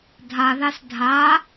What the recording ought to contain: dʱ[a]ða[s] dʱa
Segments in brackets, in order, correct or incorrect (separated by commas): correct, correct